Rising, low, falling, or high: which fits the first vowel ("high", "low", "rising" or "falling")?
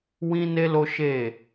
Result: high